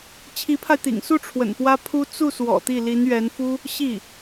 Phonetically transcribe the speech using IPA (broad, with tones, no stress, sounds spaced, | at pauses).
t͡ɕʰ i˧˥ pʰ a˧ ɪ̯ t̪ ḭ˨˩ ŋ s u˥˩ ʈ͡ʂʰ w ə̰˨˩ n p w ä˥ pʰ u˥ t͡s u˥˩ s w ɔ̰˨˩ t̪ i˥˩ l i˧˥ n ɥ ɛ˧˥ n f u˥ | ɕ i˥˩